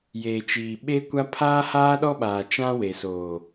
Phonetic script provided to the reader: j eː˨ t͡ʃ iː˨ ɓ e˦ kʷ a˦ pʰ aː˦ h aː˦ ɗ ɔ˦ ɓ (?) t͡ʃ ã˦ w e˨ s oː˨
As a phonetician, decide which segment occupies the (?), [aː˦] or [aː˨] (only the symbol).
aː˨